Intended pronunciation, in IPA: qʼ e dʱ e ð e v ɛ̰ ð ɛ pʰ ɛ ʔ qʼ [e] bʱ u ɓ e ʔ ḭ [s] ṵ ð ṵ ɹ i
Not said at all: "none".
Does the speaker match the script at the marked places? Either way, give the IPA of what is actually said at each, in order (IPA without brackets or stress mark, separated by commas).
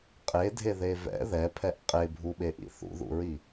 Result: e, θ